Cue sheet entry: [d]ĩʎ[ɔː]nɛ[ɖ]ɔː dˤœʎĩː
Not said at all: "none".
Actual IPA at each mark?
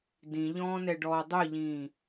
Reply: d, ɔ̃ː, ɖ

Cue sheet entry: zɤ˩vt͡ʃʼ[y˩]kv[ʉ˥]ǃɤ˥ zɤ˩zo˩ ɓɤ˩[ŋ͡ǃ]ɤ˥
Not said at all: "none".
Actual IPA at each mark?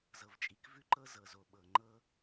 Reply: i˩, ʉ˥, ŋ͡ǃ

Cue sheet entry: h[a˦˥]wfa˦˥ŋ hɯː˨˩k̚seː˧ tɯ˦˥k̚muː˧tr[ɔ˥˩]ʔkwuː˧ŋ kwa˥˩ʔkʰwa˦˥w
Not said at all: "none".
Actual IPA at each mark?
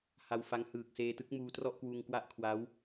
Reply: a˧, ɔ˥˩

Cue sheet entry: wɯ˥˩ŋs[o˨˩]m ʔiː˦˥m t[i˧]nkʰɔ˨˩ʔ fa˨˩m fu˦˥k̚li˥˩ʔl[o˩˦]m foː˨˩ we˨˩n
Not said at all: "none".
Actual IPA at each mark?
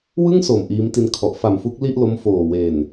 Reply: o˨˩, i˧, o˦˥

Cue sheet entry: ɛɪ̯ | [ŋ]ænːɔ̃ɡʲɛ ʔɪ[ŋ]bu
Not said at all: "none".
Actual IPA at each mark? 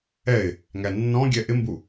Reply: ŋ, m

